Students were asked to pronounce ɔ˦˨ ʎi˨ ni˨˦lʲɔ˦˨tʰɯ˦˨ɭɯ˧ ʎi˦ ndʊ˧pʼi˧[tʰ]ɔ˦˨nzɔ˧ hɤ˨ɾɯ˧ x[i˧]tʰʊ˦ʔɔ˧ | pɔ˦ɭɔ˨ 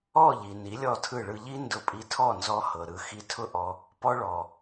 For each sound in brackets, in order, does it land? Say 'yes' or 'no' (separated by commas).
yes, yes